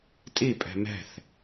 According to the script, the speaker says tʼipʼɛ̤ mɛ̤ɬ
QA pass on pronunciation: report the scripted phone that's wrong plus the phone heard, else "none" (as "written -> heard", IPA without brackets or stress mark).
ɬ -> θ